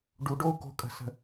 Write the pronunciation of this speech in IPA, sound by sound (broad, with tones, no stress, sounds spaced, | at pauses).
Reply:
ɖ u˨ ɖ o˧ u̯ k o̤˨ kʼ ə̤˨ s ə̤˨